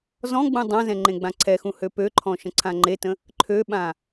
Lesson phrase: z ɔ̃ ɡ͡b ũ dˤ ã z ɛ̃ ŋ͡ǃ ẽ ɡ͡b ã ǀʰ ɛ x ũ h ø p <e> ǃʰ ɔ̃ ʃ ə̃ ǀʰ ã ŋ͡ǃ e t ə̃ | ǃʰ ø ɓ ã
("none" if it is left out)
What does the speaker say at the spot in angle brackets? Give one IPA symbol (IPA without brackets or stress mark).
ø